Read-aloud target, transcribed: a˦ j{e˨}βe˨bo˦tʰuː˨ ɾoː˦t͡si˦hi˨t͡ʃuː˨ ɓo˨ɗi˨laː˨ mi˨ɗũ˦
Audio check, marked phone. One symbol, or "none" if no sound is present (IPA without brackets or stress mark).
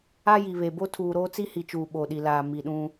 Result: i˨